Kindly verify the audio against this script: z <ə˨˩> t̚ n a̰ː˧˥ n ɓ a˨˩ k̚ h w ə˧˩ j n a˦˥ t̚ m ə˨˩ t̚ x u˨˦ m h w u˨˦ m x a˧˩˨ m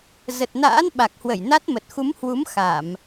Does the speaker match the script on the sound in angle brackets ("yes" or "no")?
yes